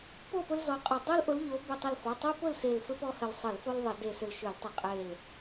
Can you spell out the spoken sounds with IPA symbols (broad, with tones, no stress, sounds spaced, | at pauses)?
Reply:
p o˥˨ p ʊ˦ l z ɔ˧˩ qʼ ɘ˧˩ dˤ o˦ l ʔ ʊ˨˦ l ʎ o˨˦ b ʏ˧˩ tˤ ə˧˩ l f ɔ˩˧˩ tˤ o˦ p ʊ˥˨ l s e˧˩ l f ɘ˦ p ɔ˦ h ɘ˧˩ l sˤ ə˧˩˧ l f o˦ l ðˤ ə˧˩˧ d e˧˩ s ʏ˧˩ l ʃ ʏ˧˩˧ l tˤ e˧˩˧ qʼ e˧˩ l